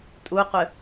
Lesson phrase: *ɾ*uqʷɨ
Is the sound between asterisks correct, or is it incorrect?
incorrect